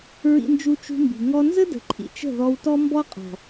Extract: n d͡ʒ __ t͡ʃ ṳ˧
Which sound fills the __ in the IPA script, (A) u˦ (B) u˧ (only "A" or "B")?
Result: B